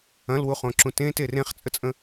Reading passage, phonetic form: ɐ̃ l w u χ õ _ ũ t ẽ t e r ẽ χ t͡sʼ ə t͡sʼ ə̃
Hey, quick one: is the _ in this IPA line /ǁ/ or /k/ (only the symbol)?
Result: ǁ